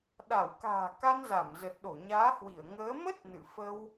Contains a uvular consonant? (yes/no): no